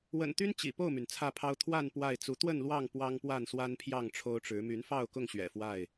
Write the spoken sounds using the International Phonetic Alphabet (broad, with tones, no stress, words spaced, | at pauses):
wə̰˨˩nt̪y˦n t͡ɕḭ˨˩ po˥˨ʊ̯my˩n t͡sʰä˥˨pʰɑ˦ʊ̯ t̪ʰwa˥˨n pwa˥˨ɪ̯t͡su˨˦ t̪wə˥˨nlwɑ˥˨ŋ pwɑ˦ŋpwa˥˨nswa˦npʰjɑ˥˨ŋ ʈ͡ʂʰo˦ʊ̯ʈ͡ʂɻ̩˨˦ my˨˦nfɑ˥˨ʊ̯kʊ˥˨ŋ ɕɥɛ̰˨˩fwa˥˨ɪ̯